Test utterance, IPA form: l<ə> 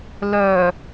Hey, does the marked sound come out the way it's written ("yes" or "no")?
no